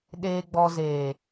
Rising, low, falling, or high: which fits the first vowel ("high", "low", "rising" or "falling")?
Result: low